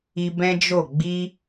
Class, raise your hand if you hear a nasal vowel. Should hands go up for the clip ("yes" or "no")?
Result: yes